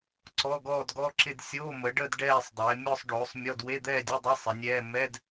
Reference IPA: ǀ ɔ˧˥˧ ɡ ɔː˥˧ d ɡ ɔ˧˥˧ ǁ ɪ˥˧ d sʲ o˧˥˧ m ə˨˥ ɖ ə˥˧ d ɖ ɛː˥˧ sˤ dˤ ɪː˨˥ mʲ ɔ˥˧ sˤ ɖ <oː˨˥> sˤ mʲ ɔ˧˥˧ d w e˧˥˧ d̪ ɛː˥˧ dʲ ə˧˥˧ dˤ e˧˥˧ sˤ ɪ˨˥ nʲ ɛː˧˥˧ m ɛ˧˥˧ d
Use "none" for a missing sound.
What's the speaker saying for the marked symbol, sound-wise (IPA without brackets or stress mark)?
oː˨˥